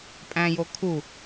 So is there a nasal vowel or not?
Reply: yes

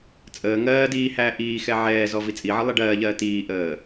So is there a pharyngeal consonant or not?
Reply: yes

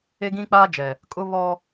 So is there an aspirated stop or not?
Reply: no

